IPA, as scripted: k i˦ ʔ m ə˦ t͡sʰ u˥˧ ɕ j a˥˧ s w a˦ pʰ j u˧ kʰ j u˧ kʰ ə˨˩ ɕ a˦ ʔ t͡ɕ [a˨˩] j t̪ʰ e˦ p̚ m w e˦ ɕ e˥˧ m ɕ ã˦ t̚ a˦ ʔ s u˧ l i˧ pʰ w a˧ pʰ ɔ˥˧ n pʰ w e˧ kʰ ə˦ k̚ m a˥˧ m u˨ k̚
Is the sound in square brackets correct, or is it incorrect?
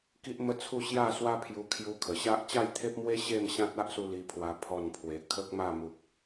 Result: incorrect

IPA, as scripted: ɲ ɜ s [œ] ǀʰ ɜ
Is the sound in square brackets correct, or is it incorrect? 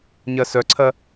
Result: correct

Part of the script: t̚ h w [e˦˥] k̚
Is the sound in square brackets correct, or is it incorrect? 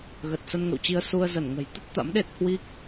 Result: incorrect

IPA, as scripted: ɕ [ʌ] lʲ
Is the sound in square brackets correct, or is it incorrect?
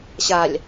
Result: incorrect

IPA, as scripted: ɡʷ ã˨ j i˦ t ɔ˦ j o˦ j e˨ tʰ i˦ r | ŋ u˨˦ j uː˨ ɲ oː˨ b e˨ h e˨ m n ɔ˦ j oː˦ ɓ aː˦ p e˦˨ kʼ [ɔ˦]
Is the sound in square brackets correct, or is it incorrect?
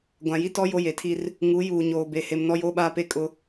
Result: incorrect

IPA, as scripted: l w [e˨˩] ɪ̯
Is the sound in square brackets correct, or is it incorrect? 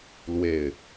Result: correct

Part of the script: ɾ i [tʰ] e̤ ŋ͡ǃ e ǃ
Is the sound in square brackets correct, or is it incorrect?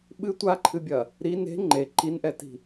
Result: incorrect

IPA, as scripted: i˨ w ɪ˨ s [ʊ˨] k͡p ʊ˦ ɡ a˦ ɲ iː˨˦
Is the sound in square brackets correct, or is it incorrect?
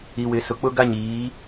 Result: correct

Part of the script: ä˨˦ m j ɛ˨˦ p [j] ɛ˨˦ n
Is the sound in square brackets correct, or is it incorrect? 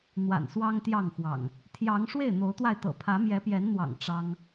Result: correct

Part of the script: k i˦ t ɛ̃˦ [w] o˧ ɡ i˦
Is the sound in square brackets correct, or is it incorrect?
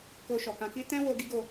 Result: correct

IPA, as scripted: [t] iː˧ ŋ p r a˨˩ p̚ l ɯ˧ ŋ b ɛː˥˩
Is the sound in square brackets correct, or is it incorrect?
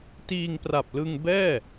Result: correct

